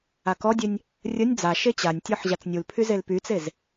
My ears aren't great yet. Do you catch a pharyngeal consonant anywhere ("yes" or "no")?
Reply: yes